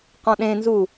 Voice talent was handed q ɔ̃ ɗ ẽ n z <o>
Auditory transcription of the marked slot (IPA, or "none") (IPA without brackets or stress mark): u